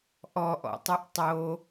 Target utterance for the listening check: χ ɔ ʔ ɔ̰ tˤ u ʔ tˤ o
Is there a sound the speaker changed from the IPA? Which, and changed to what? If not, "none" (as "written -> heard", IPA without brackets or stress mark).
χ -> ʔ